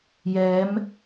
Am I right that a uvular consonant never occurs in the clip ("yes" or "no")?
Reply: yes